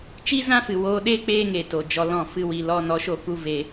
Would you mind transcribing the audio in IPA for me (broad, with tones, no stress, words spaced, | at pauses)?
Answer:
t͡ʃi˦zã˦fɨ˨woː˧ ɗeː˦ k͡peː˦ŋeː˨to˨ d͡ʒɔ˧lɔ̃˦˨fɨ˦wi˧ lɔ˧nɔ˨˦ʃo˧ku˧ ve˧